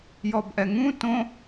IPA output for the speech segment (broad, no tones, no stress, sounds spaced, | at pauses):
j ɔ b ʔ ɛ ŋ ũ t õ